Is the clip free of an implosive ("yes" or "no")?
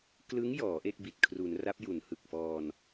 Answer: yes